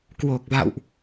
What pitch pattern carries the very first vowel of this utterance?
low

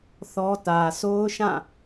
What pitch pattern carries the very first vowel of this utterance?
high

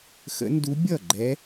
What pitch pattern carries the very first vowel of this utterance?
rising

